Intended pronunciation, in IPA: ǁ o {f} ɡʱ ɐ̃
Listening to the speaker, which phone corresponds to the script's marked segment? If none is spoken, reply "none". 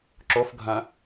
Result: f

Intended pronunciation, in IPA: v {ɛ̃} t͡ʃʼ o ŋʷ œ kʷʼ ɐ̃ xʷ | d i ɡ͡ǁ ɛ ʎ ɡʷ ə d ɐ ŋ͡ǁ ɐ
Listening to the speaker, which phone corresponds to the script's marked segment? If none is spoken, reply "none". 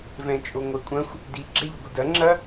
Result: ɛ̃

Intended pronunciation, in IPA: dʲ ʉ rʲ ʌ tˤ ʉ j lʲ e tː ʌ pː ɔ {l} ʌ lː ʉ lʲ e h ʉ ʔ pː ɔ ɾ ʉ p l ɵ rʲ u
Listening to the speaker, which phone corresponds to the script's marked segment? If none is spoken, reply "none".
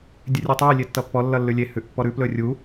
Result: lː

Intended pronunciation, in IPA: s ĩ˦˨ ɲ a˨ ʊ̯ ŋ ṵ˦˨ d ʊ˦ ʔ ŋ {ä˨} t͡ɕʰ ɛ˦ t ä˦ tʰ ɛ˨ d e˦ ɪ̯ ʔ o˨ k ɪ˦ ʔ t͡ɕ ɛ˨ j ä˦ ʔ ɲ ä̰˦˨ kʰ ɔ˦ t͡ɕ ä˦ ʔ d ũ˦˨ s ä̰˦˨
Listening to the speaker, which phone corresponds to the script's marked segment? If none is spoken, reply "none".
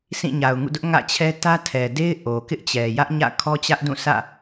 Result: ä̰˦˨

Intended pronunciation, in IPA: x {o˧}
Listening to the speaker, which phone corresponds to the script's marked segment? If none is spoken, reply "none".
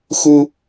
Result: u˧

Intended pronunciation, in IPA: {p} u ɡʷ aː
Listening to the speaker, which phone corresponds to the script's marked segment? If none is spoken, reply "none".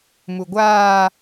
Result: m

